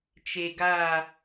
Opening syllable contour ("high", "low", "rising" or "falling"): low